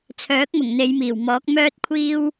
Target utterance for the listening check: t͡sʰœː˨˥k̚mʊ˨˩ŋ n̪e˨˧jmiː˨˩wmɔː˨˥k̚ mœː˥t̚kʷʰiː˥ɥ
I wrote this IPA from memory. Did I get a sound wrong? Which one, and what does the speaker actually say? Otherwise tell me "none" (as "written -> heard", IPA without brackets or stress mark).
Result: ɥ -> w